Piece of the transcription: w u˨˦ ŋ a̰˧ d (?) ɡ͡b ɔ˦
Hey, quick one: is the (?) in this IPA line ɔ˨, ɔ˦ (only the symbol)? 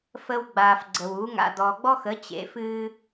ɔ˨